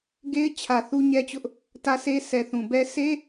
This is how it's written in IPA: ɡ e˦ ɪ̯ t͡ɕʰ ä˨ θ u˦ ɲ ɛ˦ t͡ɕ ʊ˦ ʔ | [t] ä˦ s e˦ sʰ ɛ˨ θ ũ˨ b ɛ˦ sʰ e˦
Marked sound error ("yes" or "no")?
no